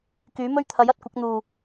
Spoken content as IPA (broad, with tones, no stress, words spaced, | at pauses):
kyː˨˥mɵ˥ɥt̪ʰɐ˨˥j ɐ˨˥t̚kʷɐ˨˥k̚ n̪uː˨˩